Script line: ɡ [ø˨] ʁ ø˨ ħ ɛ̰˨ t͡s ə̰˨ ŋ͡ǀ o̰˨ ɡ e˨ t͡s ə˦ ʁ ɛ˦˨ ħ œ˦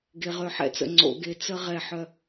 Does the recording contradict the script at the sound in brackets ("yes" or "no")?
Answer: yes